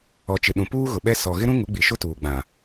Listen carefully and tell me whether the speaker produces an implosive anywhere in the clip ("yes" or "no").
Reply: yes